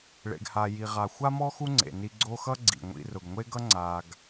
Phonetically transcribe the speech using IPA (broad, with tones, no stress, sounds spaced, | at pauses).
ɭ ḛ˩ ɡ h a˩ j i˩ ʁ a˩ xʷ a˥ m ɔ˥ x u˦ ŋ͡ǀ ḛ˩ n i˨ ɡ͡ǀ o˦ x ʌ˥ ɡ͡ǀ ḭ˩ ŋʷ ḭ˨ r ʊ˩ ɡ ŋʷ e˦ ɡ ʌ˥ ŋ͡ǀ a˨ ɡ